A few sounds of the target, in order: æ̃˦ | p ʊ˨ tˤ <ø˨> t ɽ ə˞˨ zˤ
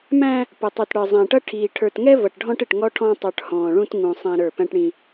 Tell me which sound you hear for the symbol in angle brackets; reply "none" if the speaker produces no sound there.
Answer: u˨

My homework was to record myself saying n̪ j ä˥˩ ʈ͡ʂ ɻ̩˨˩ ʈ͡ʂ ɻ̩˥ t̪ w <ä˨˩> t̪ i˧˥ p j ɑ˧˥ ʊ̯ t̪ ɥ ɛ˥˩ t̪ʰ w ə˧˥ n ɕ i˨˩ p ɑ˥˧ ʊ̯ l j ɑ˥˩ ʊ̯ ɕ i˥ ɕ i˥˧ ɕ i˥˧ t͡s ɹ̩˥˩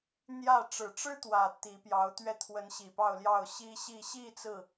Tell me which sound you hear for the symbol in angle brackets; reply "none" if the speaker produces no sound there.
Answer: ä˨˩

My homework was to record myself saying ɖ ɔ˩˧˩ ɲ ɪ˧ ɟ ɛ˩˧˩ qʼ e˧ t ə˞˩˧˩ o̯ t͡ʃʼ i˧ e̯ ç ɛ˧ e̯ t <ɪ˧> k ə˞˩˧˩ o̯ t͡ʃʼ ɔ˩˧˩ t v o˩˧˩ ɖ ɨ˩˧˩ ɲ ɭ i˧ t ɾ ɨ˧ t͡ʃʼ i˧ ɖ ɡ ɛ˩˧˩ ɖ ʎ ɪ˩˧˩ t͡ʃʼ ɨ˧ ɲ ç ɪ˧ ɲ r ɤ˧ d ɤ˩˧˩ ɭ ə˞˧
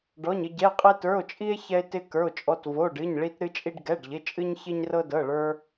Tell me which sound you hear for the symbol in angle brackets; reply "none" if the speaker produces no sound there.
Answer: ɪ˧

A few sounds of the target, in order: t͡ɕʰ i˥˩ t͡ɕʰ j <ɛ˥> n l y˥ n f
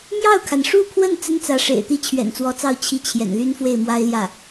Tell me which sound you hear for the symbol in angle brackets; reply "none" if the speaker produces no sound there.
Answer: ɛ̰˨˩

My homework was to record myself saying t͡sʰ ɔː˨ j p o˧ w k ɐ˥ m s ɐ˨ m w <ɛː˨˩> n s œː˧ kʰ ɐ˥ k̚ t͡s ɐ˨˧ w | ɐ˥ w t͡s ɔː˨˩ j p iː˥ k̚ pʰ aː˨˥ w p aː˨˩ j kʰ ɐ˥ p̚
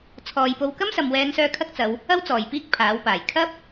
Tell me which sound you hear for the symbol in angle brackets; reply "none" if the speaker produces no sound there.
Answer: ɛː˨˧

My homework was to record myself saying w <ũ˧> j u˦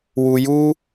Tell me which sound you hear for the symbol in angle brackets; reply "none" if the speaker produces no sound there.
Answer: u˧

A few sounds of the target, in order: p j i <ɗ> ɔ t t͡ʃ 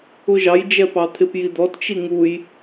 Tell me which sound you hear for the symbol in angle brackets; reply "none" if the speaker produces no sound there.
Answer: d̪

